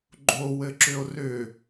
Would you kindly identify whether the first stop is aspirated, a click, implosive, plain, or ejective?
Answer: click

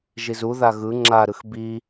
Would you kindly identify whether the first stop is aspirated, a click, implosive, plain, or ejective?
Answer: click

